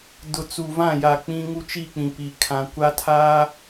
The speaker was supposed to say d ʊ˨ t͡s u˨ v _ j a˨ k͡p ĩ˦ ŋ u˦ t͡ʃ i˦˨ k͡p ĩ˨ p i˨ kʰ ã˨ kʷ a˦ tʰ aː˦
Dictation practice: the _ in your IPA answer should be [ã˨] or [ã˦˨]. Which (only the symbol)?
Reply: ã˦˨